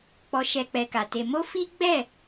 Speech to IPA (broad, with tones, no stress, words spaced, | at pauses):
k͡pɔ˧ʃɛ˧ k͡pɛ˧ka˨te˧ mo˦fi˦ɡ͡bɛ˦˨